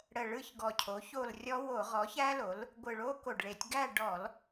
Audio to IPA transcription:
ɽ ə˨˩ ɭ ɯ˦˨ ç ɡ ɔ˨˩ cʰ o˩˥ ç o˦˨ l rʲ ɔ˦˥ w o˧˩˧ ʁ ɔ˩˥ ç æ˦˥ l o˩˥ l | ɡʷ ɯ˨˩ ɭ o˦˥ k o˨˩ ɖ ɭ e˧˩˧ tʲ ɡ æ˦˨ ɖ ɔ˧˩˧ l

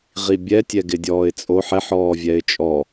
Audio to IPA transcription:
ʁ i bʲ ɛ tʲ ɛ ɡ ɪ dʲ ɔː ɪ̯ t͡sʼ o ħ ɛ ħ ɔː vʲ ɛ ɪ̯ t͡ʃʼ ɔ

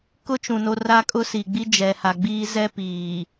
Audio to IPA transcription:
k ʊ˦ t͡ʃ ũ˨ n o˦ r a˦ kʼ ʊ˦ s i˨ ɡ͡b i˦ d͡ʒ ɛ˨ h a˨ ɡ͡b iː˦ z ɛ˦ p iː˨

